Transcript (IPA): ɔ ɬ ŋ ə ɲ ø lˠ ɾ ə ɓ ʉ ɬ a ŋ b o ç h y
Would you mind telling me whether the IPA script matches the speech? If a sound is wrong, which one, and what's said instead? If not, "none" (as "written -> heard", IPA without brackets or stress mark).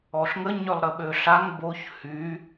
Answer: ʉ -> ø